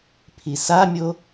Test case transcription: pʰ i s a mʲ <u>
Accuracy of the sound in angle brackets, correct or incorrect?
incorrect